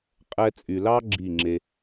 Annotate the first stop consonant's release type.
ejective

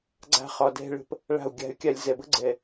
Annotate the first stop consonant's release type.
click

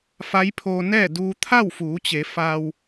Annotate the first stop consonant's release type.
aspirated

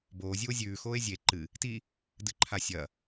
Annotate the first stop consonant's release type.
plain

